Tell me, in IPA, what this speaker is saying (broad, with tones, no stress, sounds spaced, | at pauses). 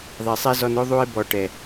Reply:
ðˤ e˨ sˤ ɛ˦ z ɔ˧ n o˦ ðˤ u˧ e̯ b ɔ˨ ʈ ɛ˨